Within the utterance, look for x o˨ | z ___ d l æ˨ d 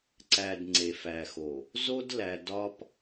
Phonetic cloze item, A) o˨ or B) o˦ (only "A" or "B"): B